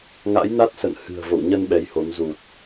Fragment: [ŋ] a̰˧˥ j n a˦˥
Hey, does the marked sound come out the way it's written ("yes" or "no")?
yes